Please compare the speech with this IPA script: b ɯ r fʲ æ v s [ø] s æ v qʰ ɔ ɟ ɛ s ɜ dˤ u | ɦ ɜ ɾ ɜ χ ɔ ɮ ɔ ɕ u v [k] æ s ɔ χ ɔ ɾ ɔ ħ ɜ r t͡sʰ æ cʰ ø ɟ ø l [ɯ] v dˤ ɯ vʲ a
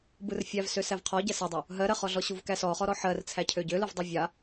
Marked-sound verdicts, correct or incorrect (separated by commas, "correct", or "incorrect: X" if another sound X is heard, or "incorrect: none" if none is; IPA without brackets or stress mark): correct, correct, correct